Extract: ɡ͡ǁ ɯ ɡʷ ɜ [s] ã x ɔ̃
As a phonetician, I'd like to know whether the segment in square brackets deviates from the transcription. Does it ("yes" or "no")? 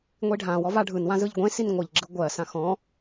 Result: no